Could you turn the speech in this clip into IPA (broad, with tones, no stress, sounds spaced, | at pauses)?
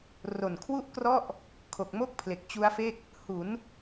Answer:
r o˨˩ n kʰ w u˥˩ ʔ k r ɔ˥˩ ʔ | kʰ o˨˩ k̚ m o˥˩ k̚ pʰ l e˨˩ k̚ t͡ɕ u˦˥ a̯ f e˥˩ k̚ | h u˩˦ n